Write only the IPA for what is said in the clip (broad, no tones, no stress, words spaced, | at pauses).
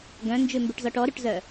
ɡœ̃nd͡ʒʉmbʉʈzɔʈ ɔɾʉʈzœ